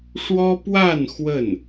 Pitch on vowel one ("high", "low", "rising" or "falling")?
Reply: high